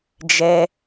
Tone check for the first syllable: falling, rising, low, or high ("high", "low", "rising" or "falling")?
high